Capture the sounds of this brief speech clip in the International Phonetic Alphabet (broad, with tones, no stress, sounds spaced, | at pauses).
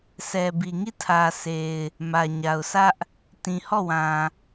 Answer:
sʰ ɛ˨ b i˨ ŋ i˦˨ tʰ ä˨ s e˨ ɪ̯ | m ä˨ ɲ a˨ ʊ̯ s ä˦ ʔ | t ĩ˨ h ɔ˦˨ w ã˨